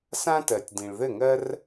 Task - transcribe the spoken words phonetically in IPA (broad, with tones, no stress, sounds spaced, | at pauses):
s ã˦ t ɜ˨ tʲ d ĩ˨ ɭ ð ɘ˦˨ ŋ ɜ˦ r